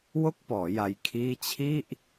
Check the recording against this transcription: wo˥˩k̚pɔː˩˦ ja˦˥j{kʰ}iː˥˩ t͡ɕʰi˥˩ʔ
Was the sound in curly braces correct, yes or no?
yes